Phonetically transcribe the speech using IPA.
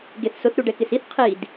ɡ e θ s ʊ θ ɾ u ɖ ɛ k ɪ s i θ qʰ i d

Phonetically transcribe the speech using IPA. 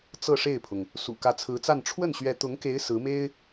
t͡s ɤ˥˧ ʂ e˥˩ ɪ̯ pʰ ʊ˩ ŋ | s ṵ˨˩ k ä˧˥ t͡sʰ ɹ̩˧˥ t͡s a˥˧ n ʈ͡ʂʰ w ə˥˩ n ɕ ɥ ɛ˧˥ t̪ ʊ˧˥ ŋ k e˧˥ ɪ̯ s ɹ̩˧˥ m e˥ ɪ̯

